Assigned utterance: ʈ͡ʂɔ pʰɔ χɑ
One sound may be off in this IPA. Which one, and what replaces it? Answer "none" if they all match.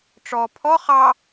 none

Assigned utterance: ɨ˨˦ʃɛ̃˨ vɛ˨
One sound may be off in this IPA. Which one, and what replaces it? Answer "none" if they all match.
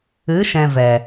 none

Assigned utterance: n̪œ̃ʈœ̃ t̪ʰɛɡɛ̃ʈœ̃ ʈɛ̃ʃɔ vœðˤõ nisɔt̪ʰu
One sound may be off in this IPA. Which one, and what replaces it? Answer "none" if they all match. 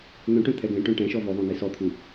none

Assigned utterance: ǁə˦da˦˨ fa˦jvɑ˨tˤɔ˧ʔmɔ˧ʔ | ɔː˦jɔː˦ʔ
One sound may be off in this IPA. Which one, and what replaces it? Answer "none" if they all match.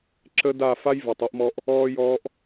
none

